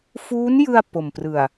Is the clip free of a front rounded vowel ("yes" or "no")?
yes